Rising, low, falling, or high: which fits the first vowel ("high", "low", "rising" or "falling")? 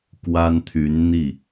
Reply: high